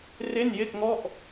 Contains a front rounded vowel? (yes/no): no